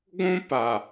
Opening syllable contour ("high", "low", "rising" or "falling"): high